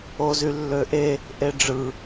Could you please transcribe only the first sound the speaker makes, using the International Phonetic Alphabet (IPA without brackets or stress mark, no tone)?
o